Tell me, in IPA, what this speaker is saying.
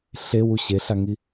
ɬ e w u ɕ e ɬ a ŋ i

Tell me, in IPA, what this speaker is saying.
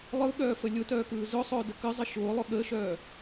lˠ ɯ ɠ œː f ə lʲ ʊ t œː k ɯː z ʊ sˤ ʊː d ə k ə zˤ ə ʃ ʊː lˠ ʊ ɠ əː ʃ œː

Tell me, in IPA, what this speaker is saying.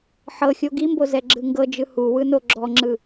ħ ɤ xʲ o ɡ i m b o z ɛ ɡ͡ǁ ɯ ŋ ɡ ɤ d͡ʒ ɯ h u w ɯ n o ɡ͡ǁ ɔ ŋ͡ǁ ɯ

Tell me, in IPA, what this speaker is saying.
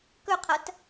k ɵ qʰ ɐ t

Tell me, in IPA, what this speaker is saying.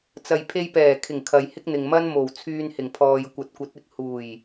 t͡s ɐ˨ j pʰ e˧ j p ɛː˨˩ kʰ ɪ˨˩ ŋ kʰ ɐ˨ j h ɪ˥ k̚ n̪ ɪ˨ ŋ m ɐ˥ n m o˨˩ w t͡sʰ yː˧ n h ɪ˨˩ ŋ pʰ ɔː˨ j kʷ ɐ˨˥ t̚ kʷ ɐ˨˥ t̚ ɪ˨ k̚ h uː˨˩ j

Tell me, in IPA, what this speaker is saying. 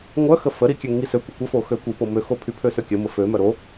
ŋʷ œ x ə f ə ɾ i kʲ ø ŋ i s ø kʷ ə kʷ ə f o x ø kʷ i p o m ø x o pʰ y pʰ ø s ø kʲ ə m ə f ø m œ ɾ o

